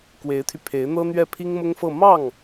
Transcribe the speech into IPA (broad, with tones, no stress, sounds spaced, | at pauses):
k w e˧˥ ɪ̯ t̪ʰ y˧ pʰ e˧˥ ɪ̯ n̪ ɤ˥ n̪ ɥ ɛ˥˩ pʰ i˥ ŋ m ʊ˥ ŋ f ɤ˥˧ m ɑ˥˩ ŋ